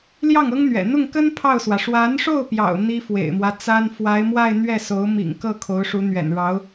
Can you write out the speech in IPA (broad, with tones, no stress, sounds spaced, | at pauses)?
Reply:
l j ɑ˥˩ ŋ ɤ˥ ŋ n̪ ɥ ɛ̰˨˩ n̪ ʊ˥˩ ŋ k ə˥ n pʰ ɑ˥˩ ʊ̯ s w ä˩ ʂ w a˧˥ n ʂ o˥˩ ʊ̯ p j ɑ̰˨˩ ʊ̯ n̪ i˥ f w ḛ˨˩ ɪ̯ m w ä˦ t͡s a˥ n f w a˧˥ ɪ̯ m w a˥˧ ɪ̯ n̪ ɥ ɛ˥˩ s o˧˥ ʊ̯ m ḭ˨˩ ŋ k ɤ˥˩ kʰ o˧˥ ʊ̯ ʂ u˧˥ n̪ ɥ ɛ̰˨˩ n ɻ ɑ˧˥ ʊ̯